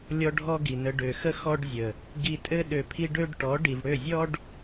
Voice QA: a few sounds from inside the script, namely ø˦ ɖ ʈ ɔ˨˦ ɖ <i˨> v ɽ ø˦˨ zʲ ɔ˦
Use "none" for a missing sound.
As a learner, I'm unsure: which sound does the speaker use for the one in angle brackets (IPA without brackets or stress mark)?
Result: i˨